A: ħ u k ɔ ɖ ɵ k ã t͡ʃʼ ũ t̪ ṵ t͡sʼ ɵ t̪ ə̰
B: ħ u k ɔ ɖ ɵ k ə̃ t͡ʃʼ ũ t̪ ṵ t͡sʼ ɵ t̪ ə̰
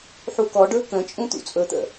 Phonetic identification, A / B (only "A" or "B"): B